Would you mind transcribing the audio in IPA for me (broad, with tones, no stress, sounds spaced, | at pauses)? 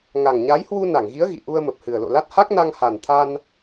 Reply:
ŋ a˨˩ ŋ ɲ a˨˦ j h w u˧ n a˧˩ ŋ ɣ i˨˦ ə̯ ɣ ḭ˧˨ ʔ u˧ ə̯ m ə˨˩ p̚ h ɨ˨˩ ə̯ l o̰˧˨ l a˦˥ t̚ h a˦˥ k̚ n a˧ ŋ h a˨˩ n t̪ʰ a˧ n